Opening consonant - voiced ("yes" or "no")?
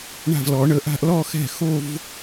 yes